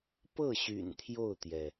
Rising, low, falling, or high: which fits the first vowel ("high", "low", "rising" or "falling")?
falling